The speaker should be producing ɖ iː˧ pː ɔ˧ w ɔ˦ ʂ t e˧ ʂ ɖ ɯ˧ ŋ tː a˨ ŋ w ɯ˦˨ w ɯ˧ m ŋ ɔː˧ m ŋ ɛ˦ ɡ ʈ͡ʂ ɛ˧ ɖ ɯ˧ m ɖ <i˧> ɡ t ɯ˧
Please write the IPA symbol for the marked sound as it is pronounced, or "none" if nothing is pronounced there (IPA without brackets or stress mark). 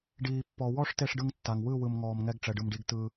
i˧